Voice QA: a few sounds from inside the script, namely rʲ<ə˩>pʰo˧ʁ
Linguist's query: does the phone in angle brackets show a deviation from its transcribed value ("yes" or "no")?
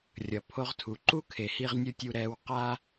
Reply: yes